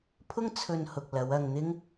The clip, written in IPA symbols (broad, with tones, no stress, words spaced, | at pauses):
pʰʊ˥ŋt͡sʰɵ˧nhʊ˨k̚ lɐ˨˧wɐ˧ŋn̪ɪ˥ŋ